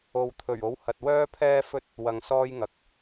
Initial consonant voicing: voiced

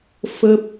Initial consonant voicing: voiceless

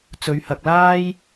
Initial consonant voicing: voiceless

